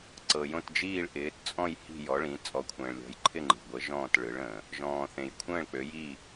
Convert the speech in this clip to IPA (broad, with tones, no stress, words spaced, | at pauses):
ǀɤ˩jõ˧˩t d͡ʒiː˧˩ɭ ʔɪː˩˧tt͡sʼɔ̃˧˩j hi̤˧˩jɔ˩˧ɭĩ˩˧ t͡sʼɔ˩˧kʷʰə̃ː˩ɭlʲɔ̤˩˧j ǃʰɪ˧˩ŋ͡ǃi̤˩ɡʷə˩˧ ʒɔ̃ː˧˩t ɭɯ˩˧ɭə̃ː˩ | ʒɔ̃ː˩θẽ˩j kʷʰə̃ː˧˩ɭk͡pø˩˧jiː˧˩